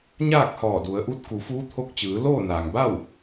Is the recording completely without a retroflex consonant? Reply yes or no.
yes